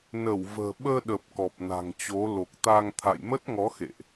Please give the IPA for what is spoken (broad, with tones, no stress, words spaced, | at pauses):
nə˧˩wvə̤ː˨˩ ɓəː˧ɗə˨˩p̚ kɔ˨˩p̚na̤˨˩ŋ t͡ɕo˨˦ lo˨˩k̚ t̪a˧ŋ t̪ʰa̰˧˨jmə˦˥t̚ŋɔ˨˦ xḛ˧˨ʔ